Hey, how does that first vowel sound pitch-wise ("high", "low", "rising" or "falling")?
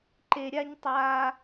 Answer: high